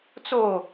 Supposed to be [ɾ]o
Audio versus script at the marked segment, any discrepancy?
yes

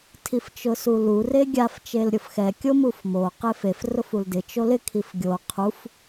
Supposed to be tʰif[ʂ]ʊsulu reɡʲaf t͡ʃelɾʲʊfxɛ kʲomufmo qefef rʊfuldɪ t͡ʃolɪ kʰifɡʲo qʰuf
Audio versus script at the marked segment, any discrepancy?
yes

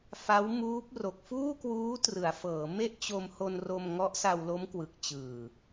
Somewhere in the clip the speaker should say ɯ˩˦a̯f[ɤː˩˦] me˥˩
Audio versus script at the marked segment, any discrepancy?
no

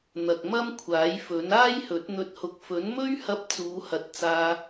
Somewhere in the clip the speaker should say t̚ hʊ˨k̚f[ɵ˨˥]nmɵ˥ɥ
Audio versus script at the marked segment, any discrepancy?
no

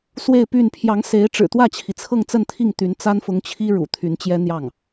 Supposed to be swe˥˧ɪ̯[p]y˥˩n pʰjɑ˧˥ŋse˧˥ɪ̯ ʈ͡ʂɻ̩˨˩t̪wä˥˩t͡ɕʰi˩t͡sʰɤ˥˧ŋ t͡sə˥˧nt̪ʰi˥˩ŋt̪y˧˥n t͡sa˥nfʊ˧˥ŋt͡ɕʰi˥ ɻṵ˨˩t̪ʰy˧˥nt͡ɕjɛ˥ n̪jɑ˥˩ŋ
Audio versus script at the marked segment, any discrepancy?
no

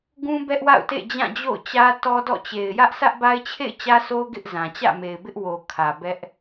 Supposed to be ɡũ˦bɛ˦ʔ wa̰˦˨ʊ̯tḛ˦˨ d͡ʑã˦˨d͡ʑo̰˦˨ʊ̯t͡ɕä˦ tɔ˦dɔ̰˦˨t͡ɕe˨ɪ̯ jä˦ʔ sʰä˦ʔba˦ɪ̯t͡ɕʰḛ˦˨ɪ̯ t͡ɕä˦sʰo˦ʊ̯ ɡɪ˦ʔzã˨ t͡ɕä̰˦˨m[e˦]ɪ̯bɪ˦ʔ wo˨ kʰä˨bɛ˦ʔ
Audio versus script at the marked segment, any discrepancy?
yes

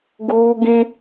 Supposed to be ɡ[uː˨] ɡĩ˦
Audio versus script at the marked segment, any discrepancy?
yes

